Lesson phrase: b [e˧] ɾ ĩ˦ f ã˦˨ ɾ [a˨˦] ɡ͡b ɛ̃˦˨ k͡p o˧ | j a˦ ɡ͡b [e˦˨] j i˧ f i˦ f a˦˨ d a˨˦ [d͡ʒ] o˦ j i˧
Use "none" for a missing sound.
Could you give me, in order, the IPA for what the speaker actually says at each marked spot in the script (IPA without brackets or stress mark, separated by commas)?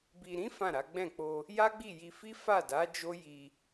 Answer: i˧, a˨˦, i˦˨, d͡ʒ